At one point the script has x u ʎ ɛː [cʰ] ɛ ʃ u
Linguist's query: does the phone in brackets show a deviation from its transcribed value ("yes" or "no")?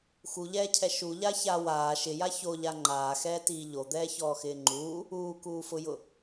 no